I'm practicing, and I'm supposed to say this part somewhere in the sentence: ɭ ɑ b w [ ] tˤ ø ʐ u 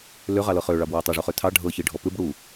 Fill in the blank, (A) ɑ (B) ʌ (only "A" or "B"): A